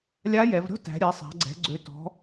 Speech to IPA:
lʲ a˧˥ j ɛ˩˧ v ɾʲ ɔ̤˥ t æ̤˩˧ ɾʲ ɛ˩˧ sˤ a̤˩˧ ɡ͡ǀ ɛ̤˩˧ ɡ͡ǀ ø˩˧ t ɔ̤˩˧

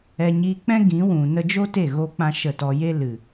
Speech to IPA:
ɛ˧ ɲ iː˧ k͡p ɛ̃˦ ɡ ĩ˨˦ w ũ˨ n ə˧ d͡ʒ o˦ t e˦˨ ɣ o˦ k͡p ã˦ ʃ ə˦˨ t ɔ˧ j e˦ l ɨ˨

